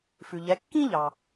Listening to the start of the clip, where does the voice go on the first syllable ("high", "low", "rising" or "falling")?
low